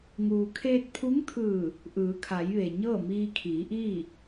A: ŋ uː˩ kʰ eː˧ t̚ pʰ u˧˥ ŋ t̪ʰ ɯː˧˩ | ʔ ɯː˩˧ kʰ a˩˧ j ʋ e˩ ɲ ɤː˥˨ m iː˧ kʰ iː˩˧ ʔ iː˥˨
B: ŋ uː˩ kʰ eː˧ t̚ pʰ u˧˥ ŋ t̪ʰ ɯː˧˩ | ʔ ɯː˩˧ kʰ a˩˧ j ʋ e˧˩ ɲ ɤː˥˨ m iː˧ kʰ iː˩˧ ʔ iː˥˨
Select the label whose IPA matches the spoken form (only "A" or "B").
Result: A